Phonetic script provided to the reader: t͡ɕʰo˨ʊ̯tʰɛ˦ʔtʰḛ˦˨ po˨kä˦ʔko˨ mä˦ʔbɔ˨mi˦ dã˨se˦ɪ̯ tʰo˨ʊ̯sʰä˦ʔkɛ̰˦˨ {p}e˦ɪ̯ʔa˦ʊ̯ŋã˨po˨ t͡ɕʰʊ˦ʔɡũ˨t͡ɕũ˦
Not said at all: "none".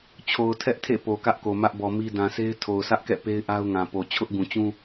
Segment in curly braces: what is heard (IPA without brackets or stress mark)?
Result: p